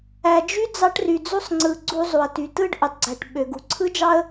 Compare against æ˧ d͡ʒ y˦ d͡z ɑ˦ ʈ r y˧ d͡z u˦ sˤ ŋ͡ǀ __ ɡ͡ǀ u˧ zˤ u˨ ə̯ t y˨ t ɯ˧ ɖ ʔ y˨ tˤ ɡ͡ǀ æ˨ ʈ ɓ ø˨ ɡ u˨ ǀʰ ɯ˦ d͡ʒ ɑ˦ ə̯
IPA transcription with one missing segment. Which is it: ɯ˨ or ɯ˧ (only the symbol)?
ɯ˧